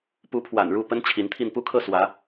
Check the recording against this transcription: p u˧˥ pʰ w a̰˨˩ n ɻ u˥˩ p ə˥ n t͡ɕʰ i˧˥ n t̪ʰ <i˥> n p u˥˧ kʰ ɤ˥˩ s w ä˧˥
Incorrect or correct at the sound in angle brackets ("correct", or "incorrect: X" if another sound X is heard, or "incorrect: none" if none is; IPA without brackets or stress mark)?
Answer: incorrect: i˥˧